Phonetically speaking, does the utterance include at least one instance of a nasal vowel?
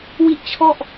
no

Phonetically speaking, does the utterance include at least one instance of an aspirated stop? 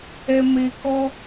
no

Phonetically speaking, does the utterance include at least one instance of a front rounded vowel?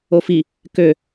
yes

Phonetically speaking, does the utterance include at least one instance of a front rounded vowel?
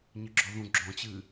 no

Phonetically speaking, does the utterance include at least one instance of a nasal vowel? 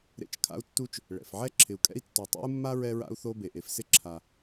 no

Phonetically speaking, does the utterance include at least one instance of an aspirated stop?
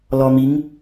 no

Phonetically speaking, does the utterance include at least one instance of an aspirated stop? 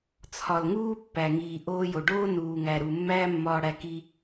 yes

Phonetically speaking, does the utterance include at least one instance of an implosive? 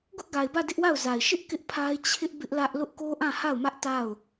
no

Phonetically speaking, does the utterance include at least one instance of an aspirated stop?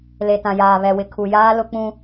yes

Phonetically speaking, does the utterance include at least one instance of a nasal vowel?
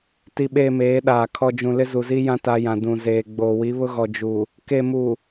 yes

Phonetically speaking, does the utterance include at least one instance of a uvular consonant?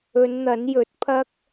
no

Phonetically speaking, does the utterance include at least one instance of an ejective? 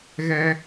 no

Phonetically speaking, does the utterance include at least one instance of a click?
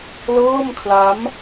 no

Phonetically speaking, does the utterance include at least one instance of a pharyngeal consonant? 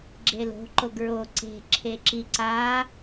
no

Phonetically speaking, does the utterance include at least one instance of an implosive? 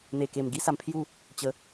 no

